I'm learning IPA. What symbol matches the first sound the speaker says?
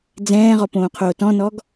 d͡z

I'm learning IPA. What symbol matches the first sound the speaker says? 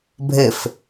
bʱ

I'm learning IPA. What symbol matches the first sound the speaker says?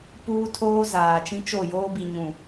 p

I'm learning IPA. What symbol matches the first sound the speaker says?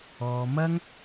ɔː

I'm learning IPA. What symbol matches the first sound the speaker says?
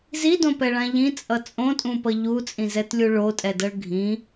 z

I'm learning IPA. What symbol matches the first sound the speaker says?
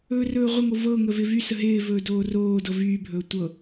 ɵː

